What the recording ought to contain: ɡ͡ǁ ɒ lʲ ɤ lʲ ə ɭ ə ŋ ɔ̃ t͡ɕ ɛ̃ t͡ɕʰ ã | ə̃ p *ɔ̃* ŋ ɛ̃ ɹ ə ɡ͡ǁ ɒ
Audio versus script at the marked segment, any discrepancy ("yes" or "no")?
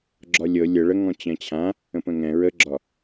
yes